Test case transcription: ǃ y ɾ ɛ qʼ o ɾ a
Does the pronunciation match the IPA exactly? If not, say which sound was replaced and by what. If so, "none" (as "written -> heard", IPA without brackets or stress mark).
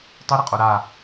ǃ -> tˤ